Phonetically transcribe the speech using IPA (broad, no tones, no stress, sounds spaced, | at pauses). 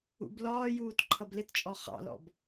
ṵ b l ɒː j uː t ǃʰ ʌ b l ɪ t t͡ʃʼ ɔ χ ɑ̰ l ɔ̰ b